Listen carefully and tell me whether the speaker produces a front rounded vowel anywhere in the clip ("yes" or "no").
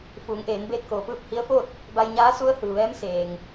no